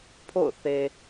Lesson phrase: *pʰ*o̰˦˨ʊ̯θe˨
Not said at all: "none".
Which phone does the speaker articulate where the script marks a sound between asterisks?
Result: pʰ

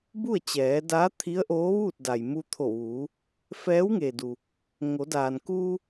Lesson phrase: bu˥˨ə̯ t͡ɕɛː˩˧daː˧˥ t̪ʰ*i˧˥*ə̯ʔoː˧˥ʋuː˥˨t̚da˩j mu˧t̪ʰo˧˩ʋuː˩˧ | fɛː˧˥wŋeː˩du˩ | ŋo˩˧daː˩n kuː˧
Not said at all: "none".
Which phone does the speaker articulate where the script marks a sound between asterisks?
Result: i˧˥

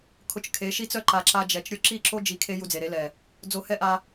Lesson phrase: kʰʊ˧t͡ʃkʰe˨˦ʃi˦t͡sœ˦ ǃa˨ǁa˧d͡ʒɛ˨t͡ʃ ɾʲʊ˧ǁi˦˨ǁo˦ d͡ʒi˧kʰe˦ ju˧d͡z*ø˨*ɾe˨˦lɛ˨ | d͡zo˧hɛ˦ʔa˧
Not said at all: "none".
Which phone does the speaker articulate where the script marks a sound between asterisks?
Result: e˨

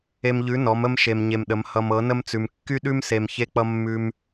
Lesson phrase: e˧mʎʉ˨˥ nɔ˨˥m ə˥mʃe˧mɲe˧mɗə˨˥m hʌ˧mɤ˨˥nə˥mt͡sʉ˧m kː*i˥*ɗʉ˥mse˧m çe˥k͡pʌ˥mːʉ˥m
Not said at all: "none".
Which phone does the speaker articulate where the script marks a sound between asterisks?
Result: y˥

